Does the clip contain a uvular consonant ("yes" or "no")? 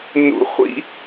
yes